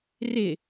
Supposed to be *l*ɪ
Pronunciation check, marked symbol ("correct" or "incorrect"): incorrect